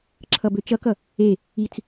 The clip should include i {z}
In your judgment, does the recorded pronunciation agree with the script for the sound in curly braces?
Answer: no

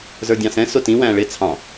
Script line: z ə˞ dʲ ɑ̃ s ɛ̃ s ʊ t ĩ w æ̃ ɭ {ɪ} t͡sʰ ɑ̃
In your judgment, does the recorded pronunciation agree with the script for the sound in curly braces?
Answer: yes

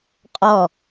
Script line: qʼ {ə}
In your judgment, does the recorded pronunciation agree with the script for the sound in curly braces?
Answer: no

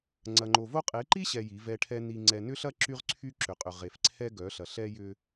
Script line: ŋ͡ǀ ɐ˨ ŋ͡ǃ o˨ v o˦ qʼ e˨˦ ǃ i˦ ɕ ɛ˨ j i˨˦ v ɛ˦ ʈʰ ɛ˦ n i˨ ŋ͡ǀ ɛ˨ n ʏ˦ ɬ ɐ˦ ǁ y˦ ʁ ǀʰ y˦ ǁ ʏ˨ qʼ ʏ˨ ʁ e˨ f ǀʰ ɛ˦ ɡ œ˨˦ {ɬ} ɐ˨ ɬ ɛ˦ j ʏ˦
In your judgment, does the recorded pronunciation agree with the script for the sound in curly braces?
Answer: yes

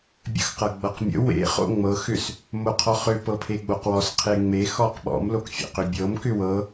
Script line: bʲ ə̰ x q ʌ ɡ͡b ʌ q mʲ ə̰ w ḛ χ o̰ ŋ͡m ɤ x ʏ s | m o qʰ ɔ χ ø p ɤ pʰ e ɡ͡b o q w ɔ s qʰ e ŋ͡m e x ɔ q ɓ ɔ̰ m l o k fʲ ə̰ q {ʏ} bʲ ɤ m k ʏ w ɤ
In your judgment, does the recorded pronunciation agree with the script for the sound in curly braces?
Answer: yes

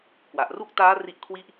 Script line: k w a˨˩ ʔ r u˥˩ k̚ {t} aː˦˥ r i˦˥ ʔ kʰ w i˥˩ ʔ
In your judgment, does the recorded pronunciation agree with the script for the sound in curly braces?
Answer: yes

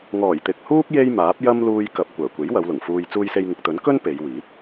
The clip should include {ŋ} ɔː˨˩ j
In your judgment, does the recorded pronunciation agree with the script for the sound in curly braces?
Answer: yes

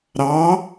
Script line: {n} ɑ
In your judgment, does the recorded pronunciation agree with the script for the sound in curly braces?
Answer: no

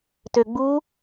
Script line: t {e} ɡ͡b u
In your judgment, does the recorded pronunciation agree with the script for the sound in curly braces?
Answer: no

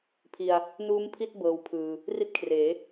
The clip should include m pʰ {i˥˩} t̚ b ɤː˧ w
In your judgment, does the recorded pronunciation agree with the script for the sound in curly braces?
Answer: yes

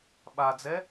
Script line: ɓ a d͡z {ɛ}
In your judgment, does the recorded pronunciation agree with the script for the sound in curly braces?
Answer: yes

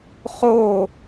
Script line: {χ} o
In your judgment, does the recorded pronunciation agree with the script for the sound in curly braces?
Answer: yes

